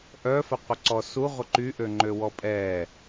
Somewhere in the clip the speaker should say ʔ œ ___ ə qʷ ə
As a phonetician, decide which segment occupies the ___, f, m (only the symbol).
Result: f